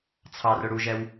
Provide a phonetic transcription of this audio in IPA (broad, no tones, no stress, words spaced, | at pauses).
t͡sʰɑrʊ ɽuʒɛw